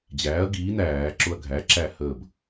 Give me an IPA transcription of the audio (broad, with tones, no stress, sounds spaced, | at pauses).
d͡ʑ æː˩˥ ɐ̯ ɡ iː˩˥ n æː˧˩˧ ǁ ʊ˦ ɐ̯ ɡʱ æː˩˥ ǁ æ˥˨ h əː˥˨ b